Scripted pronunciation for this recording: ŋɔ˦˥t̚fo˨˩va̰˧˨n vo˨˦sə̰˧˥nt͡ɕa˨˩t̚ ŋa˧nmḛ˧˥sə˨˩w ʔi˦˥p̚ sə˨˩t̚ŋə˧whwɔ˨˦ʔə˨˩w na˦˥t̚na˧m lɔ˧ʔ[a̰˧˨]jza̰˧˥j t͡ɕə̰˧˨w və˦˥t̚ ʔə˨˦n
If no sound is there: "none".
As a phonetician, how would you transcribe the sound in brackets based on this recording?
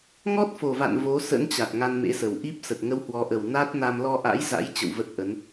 a̰˧˥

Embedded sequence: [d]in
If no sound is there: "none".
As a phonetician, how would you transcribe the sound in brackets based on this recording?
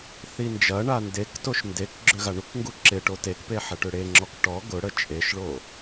θ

